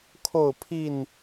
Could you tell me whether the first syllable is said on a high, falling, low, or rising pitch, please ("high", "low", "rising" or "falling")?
falling